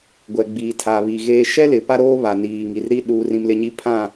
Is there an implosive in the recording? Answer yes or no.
yes